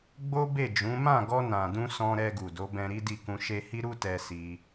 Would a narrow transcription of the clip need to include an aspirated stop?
no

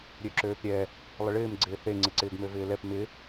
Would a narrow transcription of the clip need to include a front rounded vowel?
yes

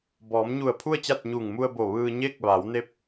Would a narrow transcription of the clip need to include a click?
no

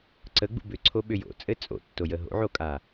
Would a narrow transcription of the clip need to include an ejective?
yes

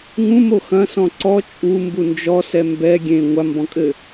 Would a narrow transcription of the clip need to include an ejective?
yes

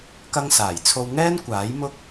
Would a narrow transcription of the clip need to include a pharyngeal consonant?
no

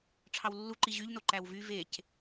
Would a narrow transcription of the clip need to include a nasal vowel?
no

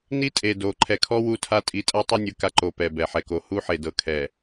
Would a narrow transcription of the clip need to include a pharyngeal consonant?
yes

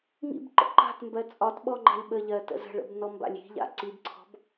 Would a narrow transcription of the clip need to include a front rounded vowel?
no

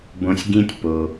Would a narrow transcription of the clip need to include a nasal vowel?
yes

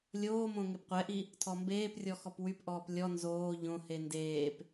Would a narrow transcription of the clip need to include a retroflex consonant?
no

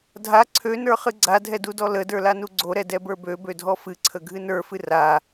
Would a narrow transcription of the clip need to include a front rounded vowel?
yes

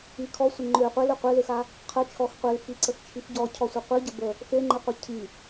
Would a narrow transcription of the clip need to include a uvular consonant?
yes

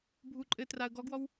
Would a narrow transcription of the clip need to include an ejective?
yes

